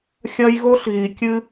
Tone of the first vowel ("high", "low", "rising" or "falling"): high